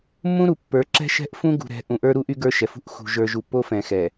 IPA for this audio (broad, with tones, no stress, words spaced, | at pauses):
mːũ˦ɾu˨ pːə˞˨˦ǁɛ̤˦ʃɛ̤˦ʔfũ˦ ɡṳ˨ɾɛ̤˨˦ʔũ˨ ʔə˞˦ɾu˦ʔy˦ ɡə˞˦ʃɛ˨fṳ˦ʔ xṳ˨ ʒə˞˨ʒu˨ pːo˦fɛ̃˨xɛ˨